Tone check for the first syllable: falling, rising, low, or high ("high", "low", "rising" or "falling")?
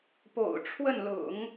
low